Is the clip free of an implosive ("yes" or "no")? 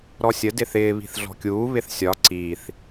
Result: yes